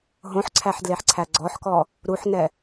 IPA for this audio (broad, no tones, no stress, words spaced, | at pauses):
ɦõħǀʰæħdleħǀʰæ ɡ͡ǀɔħkɔ | ɾuħnɛ